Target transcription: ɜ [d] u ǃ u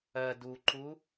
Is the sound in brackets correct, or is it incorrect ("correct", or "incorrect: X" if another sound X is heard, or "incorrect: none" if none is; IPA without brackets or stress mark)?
correct